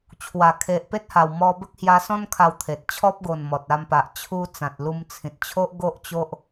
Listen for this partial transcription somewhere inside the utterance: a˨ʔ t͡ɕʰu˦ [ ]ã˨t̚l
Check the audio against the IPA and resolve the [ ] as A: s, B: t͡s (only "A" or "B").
B